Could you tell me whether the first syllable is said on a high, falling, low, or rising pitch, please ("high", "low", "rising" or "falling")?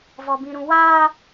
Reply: high